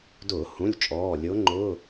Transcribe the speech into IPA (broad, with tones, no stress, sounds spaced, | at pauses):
d ʊː˧˩˧ h ũ˩˧˩ lʲ t͡ʃʼ ɔː˩˧˩ lʲ ʊː˧˥ ŋ͡ǃ ʊː˧˥˧